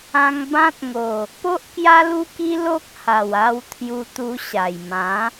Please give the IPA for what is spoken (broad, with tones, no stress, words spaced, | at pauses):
ã˧ŋbã˦t̚ŋo˨˩ | po˦ʔkja˦lu˦ki˦ lo˦k̚ ha˨˩wa˧w t̪ʰju˧t̪u˧ɕa˨˩jmã˨˦